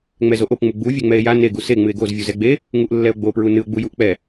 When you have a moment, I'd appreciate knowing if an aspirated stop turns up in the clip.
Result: no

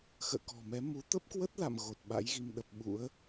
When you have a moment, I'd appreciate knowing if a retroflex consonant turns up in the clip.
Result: no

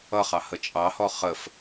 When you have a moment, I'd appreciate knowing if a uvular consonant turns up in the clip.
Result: yes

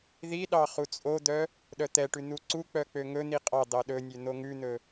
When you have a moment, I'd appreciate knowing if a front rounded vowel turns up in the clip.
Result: yes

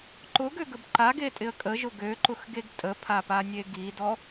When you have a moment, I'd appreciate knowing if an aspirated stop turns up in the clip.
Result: yes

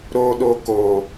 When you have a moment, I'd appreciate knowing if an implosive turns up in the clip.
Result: yes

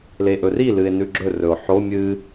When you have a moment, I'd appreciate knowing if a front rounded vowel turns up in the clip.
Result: no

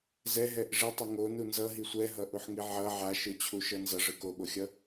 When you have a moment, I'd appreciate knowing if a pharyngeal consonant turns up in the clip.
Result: yes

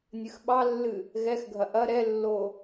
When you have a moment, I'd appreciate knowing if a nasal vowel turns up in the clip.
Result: no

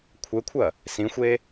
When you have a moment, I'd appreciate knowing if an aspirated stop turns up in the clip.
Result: yes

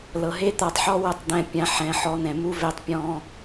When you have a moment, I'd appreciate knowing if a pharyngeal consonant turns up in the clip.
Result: yes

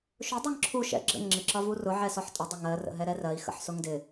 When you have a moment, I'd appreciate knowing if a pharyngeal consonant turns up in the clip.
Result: yes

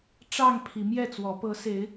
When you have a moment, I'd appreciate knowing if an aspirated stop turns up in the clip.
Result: yes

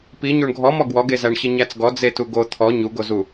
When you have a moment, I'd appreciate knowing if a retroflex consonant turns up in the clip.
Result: yes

